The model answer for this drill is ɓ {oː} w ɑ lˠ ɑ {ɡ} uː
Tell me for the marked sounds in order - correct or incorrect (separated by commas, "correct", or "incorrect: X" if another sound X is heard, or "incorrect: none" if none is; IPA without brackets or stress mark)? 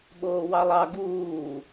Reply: correct, correct